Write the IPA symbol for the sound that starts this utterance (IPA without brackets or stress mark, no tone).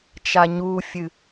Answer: t͡ʃ